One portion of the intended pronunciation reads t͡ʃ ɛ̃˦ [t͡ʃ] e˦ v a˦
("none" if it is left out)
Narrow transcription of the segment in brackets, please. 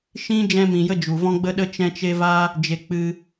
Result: t͡ʃ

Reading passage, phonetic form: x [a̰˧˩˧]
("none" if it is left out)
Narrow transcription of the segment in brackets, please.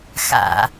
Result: a̰˧˩˧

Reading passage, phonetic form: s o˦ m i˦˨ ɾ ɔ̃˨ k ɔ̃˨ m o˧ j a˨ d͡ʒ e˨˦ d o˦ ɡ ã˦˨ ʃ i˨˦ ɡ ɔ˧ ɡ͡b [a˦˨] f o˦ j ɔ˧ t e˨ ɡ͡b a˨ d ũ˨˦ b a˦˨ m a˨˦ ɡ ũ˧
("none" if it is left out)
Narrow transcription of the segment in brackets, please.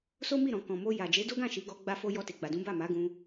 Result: a˦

